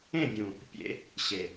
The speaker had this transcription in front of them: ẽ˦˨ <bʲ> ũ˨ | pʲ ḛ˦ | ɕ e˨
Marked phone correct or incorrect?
correct